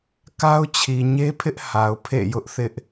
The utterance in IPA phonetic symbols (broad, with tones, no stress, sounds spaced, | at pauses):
k a˦ ʊ̯ t͡ɕʰ i˨ ɲ e˦ pʰ ɪ˦ ʔ h a˨ ʊ̯ pʰ ḛ˦˨ j ʊ˦ ʔ θ ɪ˦ ʔ